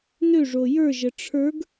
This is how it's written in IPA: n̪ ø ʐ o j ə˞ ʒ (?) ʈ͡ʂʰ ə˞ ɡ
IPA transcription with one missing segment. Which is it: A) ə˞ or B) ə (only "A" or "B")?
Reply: B